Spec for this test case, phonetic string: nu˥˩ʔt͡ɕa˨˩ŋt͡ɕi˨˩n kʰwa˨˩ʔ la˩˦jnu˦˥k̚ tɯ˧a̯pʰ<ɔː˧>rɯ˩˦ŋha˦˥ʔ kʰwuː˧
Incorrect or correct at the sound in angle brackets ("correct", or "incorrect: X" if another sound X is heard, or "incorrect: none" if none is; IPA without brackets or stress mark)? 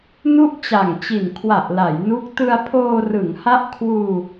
incorrect: oː˧